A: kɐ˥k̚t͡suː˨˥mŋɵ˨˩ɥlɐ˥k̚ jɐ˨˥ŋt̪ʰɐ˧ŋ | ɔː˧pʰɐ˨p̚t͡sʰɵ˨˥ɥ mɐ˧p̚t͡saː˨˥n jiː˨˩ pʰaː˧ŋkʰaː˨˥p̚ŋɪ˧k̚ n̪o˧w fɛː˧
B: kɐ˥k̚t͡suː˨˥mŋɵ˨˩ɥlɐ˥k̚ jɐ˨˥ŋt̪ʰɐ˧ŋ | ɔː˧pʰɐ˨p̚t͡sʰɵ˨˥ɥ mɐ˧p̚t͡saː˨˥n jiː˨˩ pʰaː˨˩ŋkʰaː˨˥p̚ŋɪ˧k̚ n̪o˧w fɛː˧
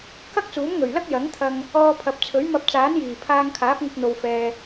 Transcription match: A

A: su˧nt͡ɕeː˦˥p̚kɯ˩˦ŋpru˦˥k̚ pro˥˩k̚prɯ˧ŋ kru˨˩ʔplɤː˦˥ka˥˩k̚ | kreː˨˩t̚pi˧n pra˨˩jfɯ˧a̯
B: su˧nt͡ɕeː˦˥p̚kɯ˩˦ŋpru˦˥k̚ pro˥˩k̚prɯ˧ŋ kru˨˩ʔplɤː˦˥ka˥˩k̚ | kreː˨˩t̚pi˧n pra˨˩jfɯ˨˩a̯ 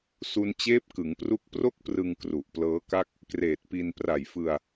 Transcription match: A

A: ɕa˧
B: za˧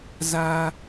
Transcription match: B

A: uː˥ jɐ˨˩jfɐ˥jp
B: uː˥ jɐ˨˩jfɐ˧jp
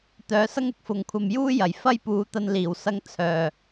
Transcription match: A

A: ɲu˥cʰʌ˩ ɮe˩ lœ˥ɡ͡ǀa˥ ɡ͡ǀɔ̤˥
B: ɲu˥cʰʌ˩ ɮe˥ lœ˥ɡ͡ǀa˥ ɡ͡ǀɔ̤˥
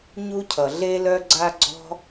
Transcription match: B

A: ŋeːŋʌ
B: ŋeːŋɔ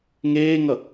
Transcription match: A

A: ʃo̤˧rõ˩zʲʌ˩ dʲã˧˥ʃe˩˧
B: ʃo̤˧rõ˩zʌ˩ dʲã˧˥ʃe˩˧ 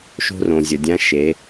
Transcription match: A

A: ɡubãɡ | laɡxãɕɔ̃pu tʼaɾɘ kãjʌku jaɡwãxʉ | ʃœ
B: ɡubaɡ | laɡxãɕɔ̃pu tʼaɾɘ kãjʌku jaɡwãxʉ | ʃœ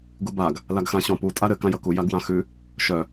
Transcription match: B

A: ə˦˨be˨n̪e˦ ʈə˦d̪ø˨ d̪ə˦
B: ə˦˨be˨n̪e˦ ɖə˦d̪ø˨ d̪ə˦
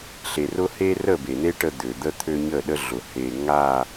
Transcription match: A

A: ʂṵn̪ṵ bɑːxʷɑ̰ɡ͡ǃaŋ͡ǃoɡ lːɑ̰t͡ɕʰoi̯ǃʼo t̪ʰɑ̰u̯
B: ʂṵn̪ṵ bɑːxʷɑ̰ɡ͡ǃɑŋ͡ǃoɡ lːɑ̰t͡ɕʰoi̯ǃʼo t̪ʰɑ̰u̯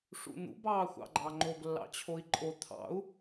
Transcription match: B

